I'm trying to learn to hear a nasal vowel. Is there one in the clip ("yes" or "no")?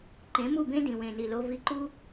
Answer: yes